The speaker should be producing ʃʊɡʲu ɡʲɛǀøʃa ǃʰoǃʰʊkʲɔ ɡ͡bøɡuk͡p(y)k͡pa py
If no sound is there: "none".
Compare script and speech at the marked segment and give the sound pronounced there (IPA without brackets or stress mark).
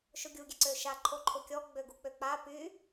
ø